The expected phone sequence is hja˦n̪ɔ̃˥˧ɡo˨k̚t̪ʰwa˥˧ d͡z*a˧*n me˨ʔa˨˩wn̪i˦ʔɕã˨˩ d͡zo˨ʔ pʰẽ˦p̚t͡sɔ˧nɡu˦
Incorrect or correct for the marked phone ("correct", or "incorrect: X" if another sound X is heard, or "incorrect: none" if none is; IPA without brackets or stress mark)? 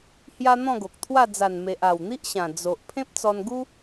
incorrect: a˨˩